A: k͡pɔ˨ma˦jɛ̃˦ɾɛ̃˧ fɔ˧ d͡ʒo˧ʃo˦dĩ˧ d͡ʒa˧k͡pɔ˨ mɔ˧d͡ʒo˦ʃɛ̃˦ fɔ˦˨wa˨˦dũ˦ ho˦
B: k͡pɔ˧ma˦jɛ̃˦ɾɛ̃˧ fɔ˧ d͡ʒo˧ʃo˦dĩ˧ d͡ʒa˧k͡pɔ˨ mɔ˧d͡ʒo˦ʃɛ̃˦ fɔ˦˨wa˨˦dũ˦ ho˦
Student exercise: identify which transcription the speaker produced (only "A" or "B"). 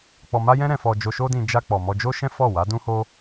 B